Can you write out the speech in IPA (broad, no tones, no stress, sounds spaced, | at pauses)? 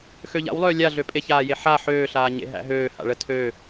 x ø ʎ a̰ w lˠ øː lʲ a ɮ ø pʼ e ç aː j e ħ a ħ øː ɬ aː ɲ ḛ ɦ æ̰ ɦ øː h a̰ ɭ ə tʰ ø